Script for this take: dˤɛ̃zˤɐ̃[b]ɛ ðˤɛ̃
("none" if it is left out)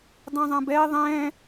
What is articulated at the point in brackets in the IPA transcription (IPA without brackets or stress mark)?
b